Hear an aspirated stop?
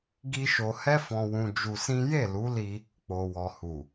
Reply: no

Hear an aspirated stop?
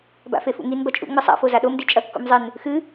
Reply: no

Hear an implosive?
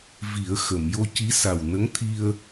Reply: no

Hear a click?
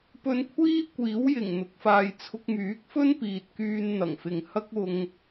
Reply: no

